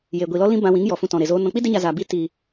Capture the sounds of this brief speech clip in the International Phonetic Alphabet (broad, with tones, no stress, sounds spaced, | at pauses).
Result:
j e˨ ɡʷ i˨ l ɔ˦ l ĩ˦ b ã˧ w ĩ˨˦ ŋ j ɔ˨ f ũ˧ t ɔ̃˨ ɾ e˨ z oː˧ n ɔ̃˨ k͡p i˦ d e˧ ɲ a˨ z aː˨ b i˦ t iː˨